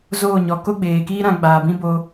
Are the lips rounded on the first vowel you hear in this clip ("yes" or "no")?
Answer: yes